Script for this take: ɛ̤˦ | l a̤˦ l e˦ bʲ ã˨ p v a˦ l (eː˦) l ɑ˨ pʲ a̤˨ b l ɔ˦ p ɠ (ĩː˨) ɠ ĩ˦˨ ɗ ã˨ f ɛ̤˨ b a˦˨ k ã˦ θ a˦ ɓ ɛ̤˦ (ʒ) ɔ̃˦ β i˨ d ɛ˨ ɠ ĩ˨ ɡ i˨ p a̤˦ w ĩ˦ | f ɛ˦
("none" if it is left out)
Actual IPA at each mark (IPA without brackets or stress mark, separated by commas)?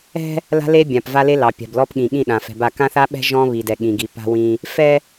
e˦, ĩ˨, ʒ